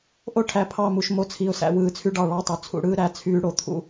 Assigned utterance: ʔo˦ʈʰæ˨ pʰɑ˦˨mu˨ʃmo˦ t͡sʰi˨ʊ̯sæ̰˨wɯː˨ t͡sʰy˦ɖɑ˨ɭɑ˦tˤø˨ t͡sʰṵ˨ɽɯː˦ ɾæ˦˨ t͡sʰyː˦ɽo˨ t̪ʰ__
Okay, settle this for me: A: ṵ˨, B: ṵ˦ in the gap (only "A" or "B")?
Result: B